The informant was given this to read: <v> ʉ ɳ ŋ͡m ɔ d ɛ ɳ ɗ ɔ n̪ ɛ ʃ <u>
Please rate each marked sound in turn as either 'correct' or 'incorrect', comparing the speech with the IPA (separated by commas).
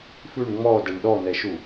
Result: incorrect, correct